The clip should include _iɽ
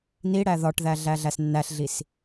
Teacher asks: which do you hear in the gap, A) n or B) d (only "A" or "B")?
A